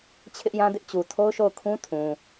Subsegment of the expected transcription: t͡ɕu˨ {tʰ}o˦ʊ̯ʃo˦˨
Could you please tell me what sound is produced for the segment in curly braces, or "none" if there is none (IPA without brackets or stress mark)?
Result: tʰ